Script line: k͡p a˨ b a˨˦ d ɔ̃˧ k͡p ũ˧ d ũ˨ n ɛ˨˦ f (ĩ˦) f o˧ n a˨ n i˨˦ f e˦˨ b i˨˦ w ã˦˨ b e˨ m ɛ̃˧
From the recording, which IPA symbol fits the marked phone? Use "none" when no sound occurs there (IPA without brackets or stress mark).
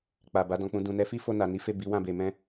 i˦